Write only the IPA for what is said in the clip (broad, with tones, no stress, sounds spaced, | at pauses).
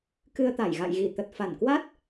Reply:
k ɨ˧ ə̯ t̪ a˧˩ j ɣ a̰˧˨ j ɣ i˧˩ t̪ ə˨˩ t̚ f a˧˩ n k w a˦˥ t̚